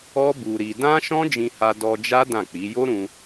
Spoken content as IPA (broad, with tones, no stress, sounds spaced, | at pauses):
ɔ˦ b u˧ ɾ i˧ d ã˦ ʃ ɔ̃˦ d͡ʒ ĩ˧ h a˧ d ɔ˧ d͡ʒ a˦ d ã˦˨ k͡p i˨˦ j o˦ ɾ ũ˧